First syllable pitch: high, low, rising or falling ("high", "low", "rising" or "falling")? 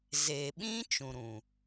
low